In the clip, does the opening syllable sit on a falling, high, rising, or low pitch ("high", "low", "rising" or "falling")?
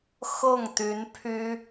falling